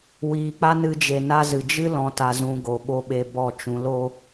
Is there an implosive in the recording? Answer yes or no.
yes